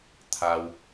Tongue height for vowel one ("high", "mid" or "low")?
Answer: low